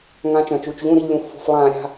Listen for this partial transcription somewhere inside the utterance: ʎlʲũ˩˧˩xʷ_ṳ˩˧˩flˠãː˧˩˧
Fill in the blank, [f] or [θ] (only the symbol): f